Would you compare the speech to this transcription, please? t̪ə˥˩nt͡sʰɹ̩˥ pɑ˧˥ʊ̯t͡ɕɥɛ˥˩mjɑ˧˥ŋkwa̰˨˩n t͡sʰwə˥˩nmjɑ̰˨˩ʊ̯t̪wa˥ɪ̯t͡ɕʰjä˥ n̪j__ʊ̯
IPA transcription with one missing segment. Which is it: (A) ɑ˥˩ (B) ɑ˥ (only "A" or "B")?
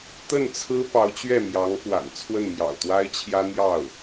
A